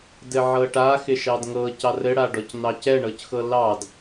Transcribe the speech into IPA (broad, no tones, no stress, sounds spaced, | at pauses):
d ɘ ʕ ɤ ʈ a x ɪ ʃ ɑ d ŋ ɤ c ɑ r ɘ ɽ a ɖ ɔ c n ɑ c ɛ ɳ ɤ c x ɤ l ɑ d